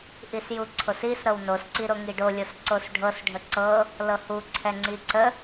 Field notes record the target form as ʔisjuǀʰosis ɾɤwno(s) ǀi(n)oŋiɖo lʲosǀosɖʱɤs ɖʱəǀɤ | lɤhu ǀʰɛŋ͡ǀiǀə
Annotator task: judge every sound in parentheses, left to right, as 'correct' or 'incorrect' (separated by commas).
correct, incorrect